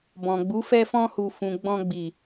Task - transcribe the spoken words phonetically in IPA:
b ɔ̃˨ ɡ͡b u˨˦ f ɛ˧ f ɔ̃˧ h u˨ f ũ˨ ɡ͡b ɔ̃˧ ɡ͡b i˨

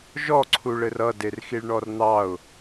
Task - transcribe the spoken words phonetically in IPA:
ʒ ɔ ǀʰ u ɭ ɘ r ʌ d e r x i ɭ ɳ ɔ r n̪ ɑ ʊ̯

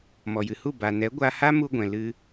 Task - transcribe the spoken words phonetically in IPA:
m ɔ˨ j ɨ˨ h u˦˨ b a˨ n ɛ˨˦ ɡʷ a˧ h a˦ m u˧ ɡʷ ɛ̃˨ l ɨ˧

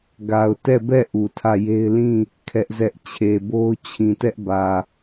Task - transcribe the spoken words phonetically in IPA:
ɡ a˨ ʊ̯ t ɛ˦˨ b ɛ˦˨ ʔ u˨ tʰ ä˦˨ j e˦ ɪ̯ l ĩ˦˨ | kʰ ɛ˦ ʔ z ɛ˦ ʔ t͡ɕʰ e˨ b o˦ ʊ̯ t͡ɕʰ ĩ˨ t ɛ˦ ʔ b ä˨

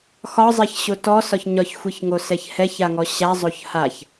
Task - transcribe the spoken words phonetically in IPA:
x ɒ zˤ ɛ ç ɕ o t ɔ s ɒ ç ɲ ɒ ç xʷ i ç ŋ o s ɛ ç h ɛ ç a ŋ ɔ ɕ a zˤ o ç h a ç

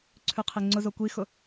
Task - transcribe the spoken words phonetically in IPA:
ǀʰ ʉ qʰ e ŋ͡ǀ ʊ z o kʷ i x ʊ

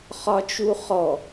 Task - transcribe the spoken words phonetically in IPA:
χ ɒ t͡ʃ u χ ɔ

